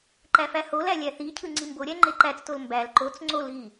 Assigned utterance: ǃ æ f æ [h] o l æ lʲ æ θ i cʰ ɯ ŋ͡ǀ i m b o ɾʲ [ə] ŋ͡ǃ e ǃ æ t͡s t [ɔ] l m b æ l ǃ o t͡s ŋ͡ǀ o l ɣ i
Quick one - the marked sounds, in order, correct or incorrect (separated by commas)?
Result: correct, incorrect, incorrect